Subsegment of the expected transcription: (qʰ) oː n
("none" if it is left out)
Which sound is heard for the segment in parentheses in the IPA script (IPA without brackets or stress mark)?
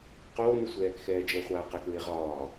q